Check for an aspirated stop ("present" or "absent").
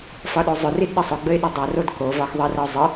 absent